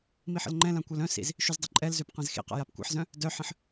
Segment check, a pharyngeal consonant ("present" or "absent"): present